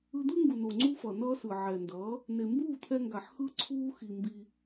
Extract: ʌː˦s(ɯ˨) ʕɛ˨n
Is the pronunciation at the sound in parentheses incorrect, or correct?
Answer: correct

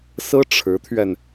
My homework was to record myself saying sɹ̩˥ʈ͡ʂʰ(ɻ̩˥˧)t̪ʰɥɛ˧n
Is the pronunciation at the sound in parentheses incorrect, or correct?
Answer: incorrect: ɻ̩˧˥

